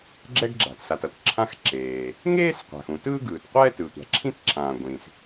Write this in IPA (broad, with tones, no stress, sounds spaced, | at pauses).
ɡ͡ǁ ɛ˥ ɡ ɡ͡ǁ a̤˩ t s a˩ t ʌ˩ t ǁʰ ã˥ x ǁ eː˩ | ŋ eː˥ s qʷ a̤˩ x ũ˩ t ɯː˥ ɡ ɯː˩ t qʷ ɛː˥ t ɯ˩ tʷ a̤˩ ǁʰ ĩ˥ t ǁʰ ãː˩ ɡʷ ĩ˩ s